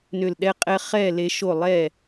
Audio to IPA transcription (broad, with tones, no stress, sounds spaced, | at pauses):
n ʏ˧˩ l ɗ ɛ˧ qʼ ɛ˧ χ ɛ˥˨ l e˧ ʃ o˥˨ lˠ ɛ˥˨